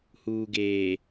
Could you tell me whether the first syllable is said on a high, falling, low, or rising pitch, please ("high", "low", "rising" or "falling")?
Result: low